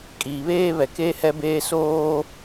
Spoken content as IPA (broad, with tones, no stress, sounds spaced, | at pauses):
kʼ iː˨ β eː˦ β ɛ˨ k e˦ h ɛ˦ b eː˦ s oː˦